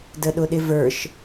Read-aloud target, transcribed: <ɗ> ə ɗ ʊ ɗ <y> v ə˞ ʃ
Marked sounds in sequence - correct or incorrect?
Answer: incorrect: d, incorrect: ɪ

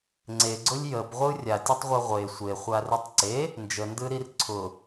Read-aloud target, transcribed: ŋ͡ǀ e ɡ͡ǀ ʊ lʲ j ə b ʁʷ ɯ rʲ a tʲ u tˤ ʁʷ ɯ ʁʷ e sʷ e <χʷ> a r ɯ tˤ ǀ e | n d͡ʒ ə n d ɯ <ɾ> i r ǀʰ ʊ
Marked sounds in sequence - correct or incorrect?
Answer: correct, correct

